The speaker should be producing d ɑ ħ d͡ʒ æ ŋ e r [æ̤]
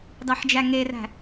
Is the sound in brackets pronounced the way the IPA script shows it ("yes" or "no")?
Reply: yes